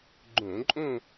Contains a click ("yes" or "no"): yes